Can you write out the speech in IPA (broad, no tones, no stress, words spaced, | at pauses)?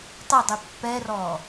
tˤɛdˤy pːɛrɔː